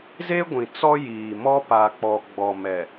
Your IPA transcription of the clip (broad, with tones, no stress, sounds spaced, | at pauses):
z e˦ ɡʷ ĩ˨ t͡s ɔ˦ j iː˨ m ɔ˦ p a˨ k͡p ɔ˨ ɡ͡b ɔ˨ m ɛ˨